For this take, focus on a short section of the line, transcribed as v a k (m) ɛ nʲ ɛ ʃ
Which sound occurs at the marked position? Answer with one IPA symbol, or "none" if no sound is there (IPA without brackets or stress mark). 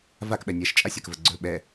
ɓ